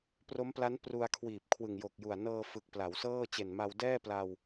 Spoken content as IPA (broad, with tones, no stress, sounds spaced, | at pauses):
p r o˦˥ m p l a˦˥ n p r u˧ a̯ kʰ w iː˨˩ p̚ kʰ w ɯ˨˩ ŋ j o˨˩ k̚ j u˨˩ a̯ n ɤː˧ f ɯ˨˩ k̚ p l a˩˦ w s ɤː˥˩ t͡ɕ e˨˩ n m a˧ w d ɛː˥˩ p l a˧ w